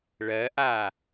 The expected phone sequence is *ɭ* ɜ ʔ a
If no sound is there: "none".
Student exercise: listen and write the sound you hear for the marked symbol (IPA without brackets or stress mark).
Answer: ɭ